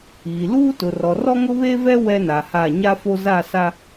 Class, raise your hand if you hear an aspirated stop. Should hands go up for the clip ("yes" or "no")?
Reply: no